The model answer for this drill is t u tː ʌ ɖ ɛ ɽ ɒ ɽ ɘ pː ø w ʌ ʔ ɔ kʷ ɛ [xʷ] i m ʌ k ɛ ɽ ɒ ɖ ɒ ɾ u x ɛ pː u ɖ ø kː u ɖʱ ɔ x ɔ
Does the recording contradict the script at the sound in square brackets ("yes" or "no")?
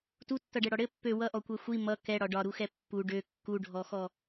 no